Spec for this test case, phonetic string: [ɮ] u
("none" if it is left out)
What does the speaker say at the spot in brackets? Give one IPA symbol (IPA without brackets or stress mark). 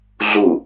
ɮ